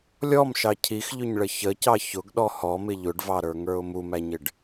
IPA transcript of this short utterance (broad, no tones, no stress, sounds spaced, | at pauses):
lʲ ɔ m ʃ ɑ cʰ i x ʎ ʊ ɲ ɭ ə ç ə c ɑ ç ʊ ɡ ɗ ɔ h ɔ m ɪ ʎ ʊ ɖ v ɑ ɾ ə˞ ŋ ə˞ ʊ̯ m u m æ ɲ ɪ ɖ